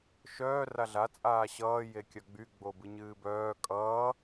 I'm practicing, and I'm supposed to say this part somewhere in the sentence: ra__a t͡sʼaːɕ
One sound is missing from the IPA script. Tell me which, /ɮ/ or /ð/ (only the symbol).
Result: ɮ